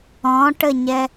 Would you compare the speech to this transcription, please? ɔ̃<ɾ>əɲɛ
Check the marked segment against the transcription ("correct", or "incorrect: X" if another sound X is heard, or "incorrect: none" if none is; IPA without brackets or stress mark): incorrect: ʈ